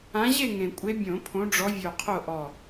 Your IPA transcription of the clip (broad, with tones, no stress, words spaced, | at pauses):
ã˨˦ʑe˥˨ŋẽ˩kʷʼe˨˦ bʲõ˧˩˧pʰõ˨˦ɖ͡ʐɔ˨˦ vʲo˧˩qʰo˥˨ʔɔ˧˩